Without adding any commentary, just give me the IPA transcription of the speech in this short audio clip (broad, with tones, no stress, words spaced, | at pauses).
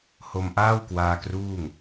ho˧mʔaː˥˩w kwaː˧kruː˥˩ŋ